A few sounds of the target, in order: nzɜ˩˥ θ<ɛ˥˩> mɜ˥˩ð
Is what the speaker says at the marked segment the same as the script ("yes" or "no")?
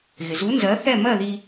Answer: yes